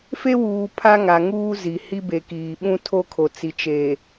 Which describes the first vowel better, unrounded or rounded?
unrounded